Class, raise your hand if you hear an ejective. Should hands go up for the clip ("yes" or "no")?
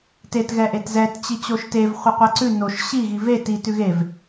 no